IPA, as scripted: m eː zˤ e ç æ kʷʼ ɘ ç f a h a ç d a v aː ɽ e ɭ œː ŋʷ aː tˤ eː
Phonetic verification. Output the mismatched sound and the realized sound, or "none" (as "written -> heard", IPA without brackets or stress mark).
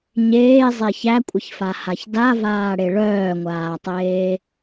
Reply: m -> ɲ